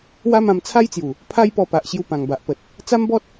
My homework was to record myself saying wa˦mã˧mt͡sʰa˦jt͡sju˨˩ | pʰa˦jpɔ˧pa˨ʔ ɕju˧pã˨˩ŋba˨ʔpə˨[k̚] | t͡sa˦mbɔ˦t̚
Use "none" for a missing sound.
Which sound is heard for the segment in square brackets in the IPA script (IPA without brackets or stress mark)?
t̚